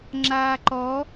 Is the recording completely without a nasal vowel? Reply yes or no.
yes